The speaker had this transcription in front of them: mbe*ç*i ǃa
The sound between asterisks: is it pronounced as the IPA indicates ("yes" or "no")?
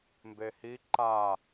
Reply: no